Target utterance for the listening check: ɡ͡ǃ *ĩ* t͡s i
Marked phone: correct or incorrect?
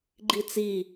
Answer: incorrect